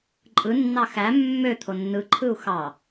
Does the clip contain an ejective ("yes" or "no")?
yes